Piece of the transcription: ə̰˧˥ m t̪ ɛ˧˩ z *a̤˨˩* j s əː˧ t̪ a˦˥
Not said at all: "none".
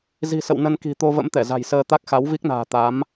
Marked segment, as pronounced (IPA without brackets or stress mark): a̤˨˩